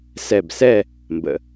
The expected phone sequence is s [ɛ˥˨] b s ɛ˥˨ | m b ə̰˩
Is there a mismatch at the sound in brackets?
yes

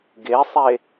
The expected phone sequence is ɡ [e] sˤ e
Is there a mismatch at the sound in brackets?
no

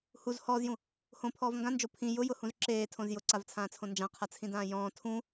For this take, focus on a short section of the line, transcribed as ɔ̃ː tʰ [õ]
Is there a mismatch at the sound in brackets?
yes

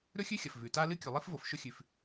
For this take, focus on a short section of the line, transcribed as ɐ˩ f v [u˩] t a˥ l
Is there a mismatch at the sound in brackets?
yes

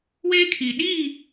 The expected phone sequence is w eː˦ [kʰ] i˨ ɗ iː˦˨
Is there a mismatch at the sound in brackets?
no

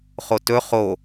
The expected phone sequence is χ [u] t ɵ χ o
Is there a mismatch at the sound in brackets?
yes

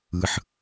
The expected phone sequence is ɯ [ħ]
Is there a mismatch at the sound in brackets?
no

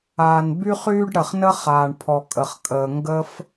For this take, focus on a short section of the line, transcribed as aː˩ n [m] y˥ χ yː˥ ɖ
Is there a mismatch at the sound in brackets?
yes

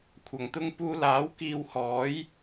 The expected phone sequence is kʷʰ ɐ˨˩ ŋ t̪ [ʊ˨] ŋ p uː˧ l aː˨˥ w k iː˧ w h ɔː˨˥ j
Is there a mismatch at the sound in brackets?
yes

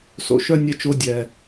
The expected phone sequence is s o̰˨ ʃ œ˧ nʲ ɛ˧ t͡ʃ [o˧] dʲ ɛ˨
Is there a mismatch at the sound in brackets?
no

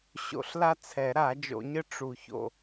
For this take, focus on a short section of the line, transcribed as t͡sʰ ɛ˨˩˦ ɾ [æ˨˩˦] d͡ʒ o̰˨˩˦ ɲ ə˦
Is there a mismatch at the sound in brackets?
yes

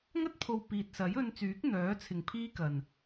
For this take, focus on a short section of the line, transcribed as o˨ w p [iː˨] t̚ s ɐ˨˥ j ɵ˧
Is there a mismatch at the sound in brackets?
no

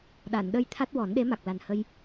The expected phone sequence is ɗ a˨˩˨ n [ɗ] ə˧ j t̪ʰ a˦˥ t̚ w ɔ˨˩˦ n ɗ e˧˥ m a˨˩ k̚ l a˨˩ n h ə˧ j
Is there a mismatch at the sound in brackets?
no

